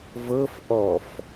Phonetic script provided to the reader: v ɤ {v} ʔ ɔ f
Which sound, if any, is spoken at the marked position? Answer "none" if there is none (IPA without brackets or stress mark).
f